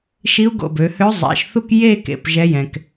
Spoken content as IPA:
ʃ i˧˥ u̯ ɡ o̰˧˩ b ø˩˧ h ø˧˥ zˤ ɛ̰˩˧˩ ʃ θ u˥˧ k j e˥˧ k ḛ˩˧˩ p ʒ ɛ˧˥ j ɛ̃˩ k

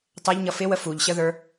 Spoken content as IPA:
tˤ ɛ ʎ ɲ ʌ f ɪ w ə f u ʎ ɕ ə ð ə˞

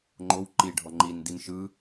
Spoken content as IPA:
ŋ͡ǃ o w ǃ i ɖʱ ɔ ŋ͡ǃ i n d i n ʃ ɯ

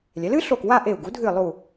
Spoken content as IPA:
lʲ ɛ˩˥ l ɨ˩˥ ɬ o˧˩ k w a˥˧ ʔ e˧˩ u̯ ɡ u˩˥ dʱ ɨ˧˩ lˠ u˧˩

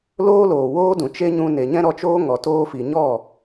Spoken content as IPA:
l oː˦ l oː˨ w oː˦ d ũ˨ t͡ʃ e˦ ɲ ũ˧ n e˨ ɲ ɛ̃˦ ɾ ɔ˧ t͡ʃ oː˦ ŋ ɔ˨ t oː˦ f i˨ ɲ ɔ˦˨

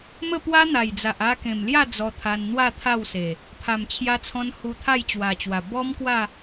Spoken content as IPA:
m ə˥˧ p w a˦ n̪ a˨˩ j d͡z a˨ ʔ a˧ k ẽ˨˩ m l j a˥˧ d͡z ɔ˧ t̪ʰ a˧ n n̪ w a˥˧ t̪ʰ a˥˧ w s e˨˩ | pʰ a˨˩ m t͡ɕʰ j a˧ t͡sʰ ɔ̃˧ n h u˧ t̪ʰ a˥˧ j t͡ɕ w a˨˩ t͡ɕ w a˨˩ b ɔ˦ m k w a˥˧

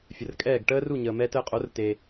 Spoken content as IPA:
fʲ ə˩ r kʼ ɛː˥˩ ɡ ʈ əː˥ r u˥˩ ɲ əː˩ m ɛː˧ t əː˧ qʼ o˩˥ r t eː˩

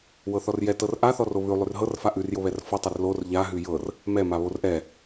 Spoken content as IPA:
w ɤ θ ɔ r j ɛ t ɤ r ʔ a θ ɔ r o β ʉ lˠ ʉ r ɦ ɤ r f a ʔ ʉ r j o β ɛ r f ɔ tˤ ɛ r l o r ʎ a ɦ ʉ j ɤ r | m ɛ m a β o r ʔ ɛ

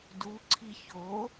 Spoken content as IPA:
d u ǀʰ i ç o

